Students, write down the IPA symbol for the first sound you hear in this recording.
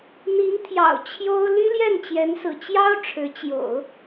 n̪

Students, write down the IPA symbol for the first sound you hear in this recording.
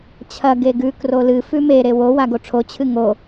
t͡ɕʰ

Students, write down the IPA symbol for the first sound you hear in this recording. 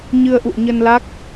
ɲ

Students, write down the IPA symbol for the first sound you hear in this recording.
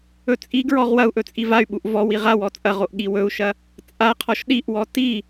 ɵ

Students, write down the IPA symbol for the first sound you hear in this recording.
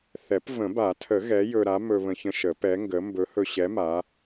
θ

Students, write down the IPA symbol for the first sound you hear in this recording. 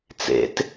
t͡s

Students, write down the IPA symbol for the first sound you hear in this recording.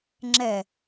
ŋ͡ǁ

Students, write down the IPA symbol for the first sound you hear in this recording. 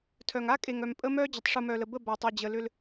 tʰ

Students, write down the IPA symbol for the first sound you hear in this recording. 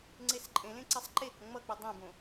ŋ͡ǀ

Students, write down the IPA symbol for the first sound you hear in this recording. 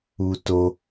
u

